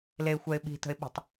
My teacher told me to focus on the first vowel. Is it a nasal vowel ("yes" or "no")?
no